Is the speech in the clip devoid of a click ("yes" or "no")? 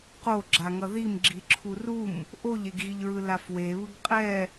no